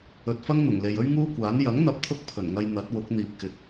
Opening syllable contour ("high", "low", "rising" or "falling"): low